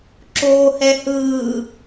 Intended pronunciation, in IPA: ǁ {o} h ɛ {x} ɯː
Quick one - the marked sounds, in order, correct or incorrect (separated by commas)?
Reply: incorrect, incorrect